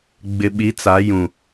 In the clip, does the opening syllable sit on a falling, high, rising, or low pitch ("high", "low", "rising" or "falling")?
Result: low